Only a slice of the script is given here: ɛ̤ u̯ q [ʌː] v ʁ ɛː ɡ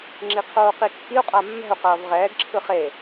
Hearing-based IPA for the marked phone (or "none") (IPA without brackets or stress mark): ʌː